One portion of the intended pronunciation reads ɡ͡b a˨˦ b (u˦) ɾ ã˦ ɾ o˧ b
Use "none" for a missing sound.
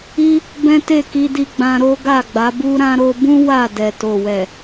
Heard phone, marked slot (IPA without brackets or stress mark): u˦